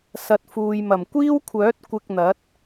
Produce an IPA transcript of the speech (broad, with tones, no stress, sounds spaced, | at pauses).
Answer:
s ɐ˨ t̚ f uː˨ j m ɐ˨˩ m kʷ iː˥ w kʷʰ œː˨˥ t̚ kʷ ɪ˧ k̚ n̪ ɐ˨˥ t̚